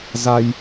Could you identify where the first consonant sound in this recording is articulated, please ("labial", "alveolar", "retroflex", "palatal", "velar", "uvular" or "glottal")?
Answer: alveolar